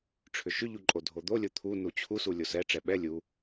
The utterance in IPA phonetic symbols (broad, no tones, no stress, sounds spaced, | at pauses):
ʈ͡ʂʰ ʏ ʃ ʏ ʎ u ǃʼ o dʱ o d̪ o lʲ o t̪ʰ u n u t͡ɕʰ u s u lʲ o s ɛ ʈ͡ʂ ɛ ɓ ɛ lʲ u